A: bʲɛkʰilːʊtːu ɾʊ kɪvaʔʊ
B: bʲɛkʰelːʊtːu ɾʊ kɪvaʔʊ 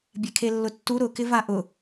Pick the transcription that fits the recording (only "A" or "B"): B